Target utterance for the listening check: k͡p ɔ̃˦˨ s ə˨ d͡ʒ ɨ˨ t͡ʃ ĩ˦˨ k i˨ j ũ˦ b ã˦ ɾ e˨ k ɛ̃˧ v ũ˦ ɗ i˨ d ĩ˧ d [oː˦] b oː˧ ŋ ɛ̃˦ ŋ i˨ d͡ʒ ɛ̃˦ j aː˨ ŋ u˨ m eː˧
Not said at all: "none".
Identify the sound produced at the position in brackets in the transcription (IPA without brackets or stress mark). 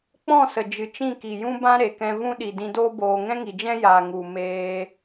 oː˦